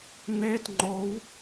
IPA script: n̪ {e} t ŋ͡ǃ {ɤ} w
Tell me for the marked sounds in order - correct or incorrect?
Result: correct, incorrect

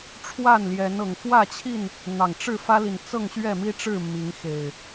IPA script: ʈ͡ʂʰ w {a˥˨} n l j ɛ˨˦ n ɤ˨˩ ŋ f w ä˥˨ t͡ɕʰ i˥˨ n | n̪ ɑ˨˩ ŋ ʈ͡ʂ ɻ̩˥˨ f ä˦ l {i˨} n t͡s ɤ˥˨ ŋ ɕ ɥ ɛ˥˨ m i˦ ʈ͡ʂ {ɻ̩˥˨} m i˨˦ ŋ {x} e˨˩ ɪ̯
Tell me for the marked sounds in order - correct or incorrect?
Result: correct, correct, correct, correct

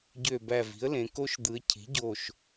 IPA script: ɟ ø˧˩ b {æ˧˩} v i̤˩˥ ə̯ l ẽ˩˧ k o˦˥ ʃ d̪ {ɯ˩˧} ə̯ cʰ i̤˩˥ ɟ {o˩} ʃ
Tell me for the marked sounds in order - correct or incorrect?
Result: correct, correct, incorrect

